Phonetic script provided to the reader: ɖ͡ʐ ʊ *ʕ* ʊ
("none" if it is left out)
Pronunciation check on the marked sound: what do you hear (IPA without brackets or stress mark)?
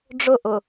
ʔ